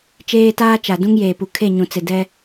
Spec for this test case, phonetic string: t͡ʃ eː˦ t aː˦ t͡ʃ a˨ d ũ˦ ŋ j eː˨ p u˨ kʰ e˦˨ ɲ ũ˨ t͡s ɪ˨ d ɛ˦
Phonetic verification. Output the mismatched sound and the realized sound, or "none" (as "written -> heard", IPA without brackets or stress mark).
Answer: none